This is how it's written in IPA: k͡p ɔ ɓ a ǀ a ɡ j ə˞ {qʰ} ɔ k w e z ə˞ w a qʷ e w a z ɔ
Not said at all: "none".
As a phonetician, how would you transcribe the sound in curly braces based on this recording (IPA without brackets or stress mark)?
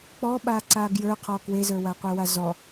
qʰ